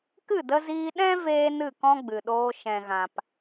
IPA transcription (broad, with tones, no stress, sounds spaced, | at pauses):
k ɨ˦˨ d ə˧ z iː˧ ɗ ɛ̃˦ v eː˦ n ɨ˦˨ k ɔ̃˦ ɡ͡b ɨ˨ ɗ oː˧ ʃ ɛ̃˨ ɣ ã˨ p